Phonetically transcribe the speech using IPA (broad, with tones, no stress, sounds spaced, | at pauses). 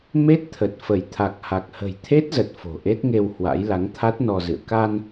m e˦˥ t̚ t̪ʰ ə˨˩ t̚ f ə˧˩ j t̪ʰ a˨˩ k̚ h a˨˩ k̚ h ə̤˨˩ j t̪ʰ e˦˥ t̚ z ə˨˩ t̚ f o̤˨˩ ʔ e˦˥ t̚ ŋ e˧ w h w a̰˧˥ j l a˨˦ ŋ t̪ʰ a˦˥ t̚ n ɔ˧ z ɨ̰˧˨ ə̯ k a˧ n